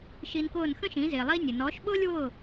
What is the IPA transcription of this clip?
ʃ i˧ n k ʊː˥˩ n x ə̃˥ ʃ ĩ˩˥ z ɪː˩ lˠ i˧ nʲ ə˩ n ɔː˩˥ ʃ ɓ ʊː˥ lʲ w ʊː˥˩

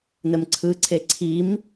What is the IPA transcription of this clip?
n ə m ǀʰ ɯ ǀʰ e ǀʰ i m

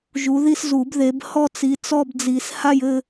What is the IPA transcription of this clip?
ʒ u˨˦ ð i˥˧ s z u˨˩˦ b ð e˨˦ b h ɔ˥˧ t͡s i˨˦ t͡s ɔ˥˧ b d͡z i˨˩˦ s h a˥˧ j ɘ˥˧

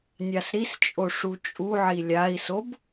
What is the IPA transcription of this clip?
nʲ a s ɾ i s t͡ʃʼ o ʂ u t͡ʃʼ u ʕ i lʲ a i̯ s o b

